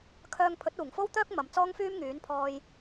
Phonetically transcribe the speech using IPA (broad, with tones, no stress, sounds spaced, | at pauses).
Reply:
kʰ œː˧ ŋ pʰ ɵ˨˥ t̚ uː˨˩ ŋ f o˥ w t̪ œː˥ k̚ m ɐ˨ m t͡s ɔː˥ ŋ f yː˥ m ŋ yː˨˥ n pʰ ɔː˧ j